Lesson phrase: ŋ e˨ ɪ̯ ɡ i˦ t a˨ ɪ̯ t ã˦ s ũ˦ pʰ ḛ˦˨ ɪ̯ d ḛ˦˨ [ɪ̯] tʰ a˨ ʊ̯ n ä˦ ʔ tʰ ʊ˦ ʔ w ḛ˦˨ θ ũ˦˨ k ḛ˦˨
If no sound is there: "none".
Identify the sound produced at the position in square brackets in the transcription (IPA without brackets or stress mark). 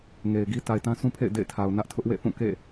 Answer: ɪ̯